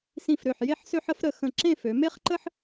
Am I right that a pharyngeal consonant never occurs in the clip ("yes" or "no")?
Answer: no